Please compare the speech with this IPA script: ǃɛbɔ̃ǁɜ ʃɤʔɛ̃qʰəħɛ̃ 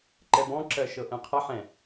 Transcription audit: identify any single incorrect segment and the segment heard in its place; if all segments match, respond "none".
none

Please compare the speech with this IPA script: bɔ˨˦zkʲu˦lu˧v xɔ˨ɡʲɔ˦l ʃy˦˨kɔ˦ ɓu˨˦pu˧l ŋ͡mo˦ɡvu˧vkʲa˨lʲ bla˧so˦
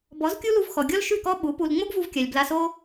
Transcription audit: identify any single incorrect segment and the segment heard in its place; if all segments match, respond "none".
none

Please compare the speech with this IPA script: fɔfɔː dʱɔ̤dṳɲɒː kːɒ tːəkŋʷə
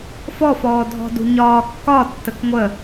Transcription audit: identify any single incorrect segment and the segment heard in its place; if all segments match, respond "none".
none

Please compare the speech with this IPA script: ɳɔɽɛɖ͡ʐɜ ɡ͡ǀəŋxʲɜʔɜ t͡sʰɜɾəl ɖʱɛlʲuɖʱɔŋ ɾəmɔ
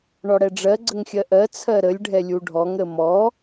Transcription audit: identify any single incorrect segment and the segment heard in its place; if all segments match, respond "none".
l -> lʲ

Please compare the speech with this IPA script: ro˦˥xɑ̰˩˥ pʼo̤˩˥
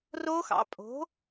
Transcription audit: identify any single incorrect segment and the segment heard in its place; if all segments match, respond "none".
none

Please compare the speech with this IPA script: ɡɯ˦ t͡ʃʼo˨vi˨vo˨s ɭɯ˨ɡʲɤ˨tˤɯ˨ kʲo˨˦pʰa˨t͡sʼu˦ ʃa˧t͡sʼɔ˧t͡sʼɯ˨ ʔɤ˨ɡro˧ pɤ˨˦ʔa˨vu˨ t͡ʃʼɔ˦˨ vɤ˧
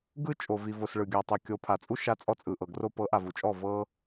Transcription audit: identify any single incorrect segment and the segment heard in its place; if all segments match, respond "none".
none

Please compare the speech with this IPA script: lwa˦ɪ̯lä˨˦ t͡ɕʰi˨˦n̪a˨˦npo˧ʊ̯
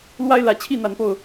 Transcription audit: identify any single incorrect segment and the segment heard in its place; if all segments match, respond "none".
i˨˦ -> i˥˨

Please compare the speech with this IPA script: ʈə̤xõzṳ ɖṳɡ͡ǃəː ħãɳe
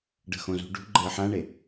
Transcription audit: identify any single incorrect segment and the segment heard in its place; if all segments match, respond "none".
ʈ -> ɖ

